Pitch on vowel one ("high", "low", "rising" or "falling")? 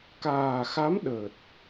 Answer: low